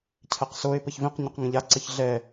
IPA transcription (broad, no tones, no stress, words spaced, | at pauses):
cʰɛqsoe̯ pəçvĩq ɲʊqŋə̃ʎa ǀəçɮɛ